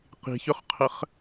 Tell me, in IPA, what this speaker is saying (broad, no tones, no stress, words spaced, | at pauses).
qi̤çʊχqʰəχ